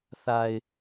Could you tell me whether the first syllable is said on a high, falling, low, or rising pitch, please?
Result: low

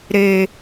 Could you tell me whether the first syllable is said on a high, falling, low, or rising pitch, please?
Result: low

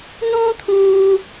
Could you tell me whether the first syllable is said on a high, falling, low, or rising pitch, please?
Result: high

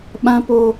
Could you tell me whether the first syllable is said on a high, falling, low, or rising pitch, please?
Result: high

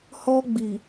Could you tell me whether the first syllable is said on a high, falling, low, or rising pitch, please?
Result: high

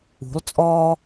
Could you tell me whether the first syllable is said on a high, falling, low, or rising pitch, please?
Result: rising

